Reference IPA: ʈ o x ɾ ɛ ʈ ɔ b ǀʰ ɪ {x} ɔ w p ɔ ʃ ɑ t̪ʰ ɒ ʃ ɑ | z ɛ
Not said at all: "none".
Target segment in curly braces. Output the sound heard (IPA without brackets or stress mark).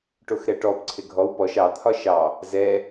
ɡʱ